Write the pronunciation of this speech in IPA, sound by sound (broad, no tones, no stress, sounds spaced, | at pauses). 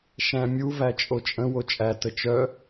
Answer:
ʃ æ̃ mʲ u v æ t͡ʃʼ o t͡ʃʼ ə̃ w o t͡ʃʼ æ t ə t͡ʃ œ